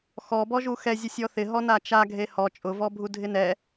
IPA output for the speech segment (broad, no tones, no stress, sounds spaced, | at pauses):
x ɔ b ɔ ʒ u x ɛ zʲ ʊ sʲ ɔ θ ɪ ɦ ɔ n a t͡ʃ a ɡʱ e h ɔ t͡ʃʼ ʊ v ɔ bʱ u dʱ ɪ n ɛ